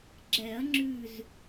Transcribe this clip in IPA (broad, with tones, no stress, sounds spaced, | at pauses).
ɡ͡ǁ ɛ˨˩˦ ɐ̯ ŋ͡ǁ ʉ˧˩ z